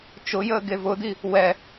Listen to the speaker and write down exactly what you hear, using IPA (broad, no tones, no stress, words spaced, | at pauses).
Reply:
t͡ʃʊjəː ɡevʊd̪i | wɛ